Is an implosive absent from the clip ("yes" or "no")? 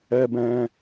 yes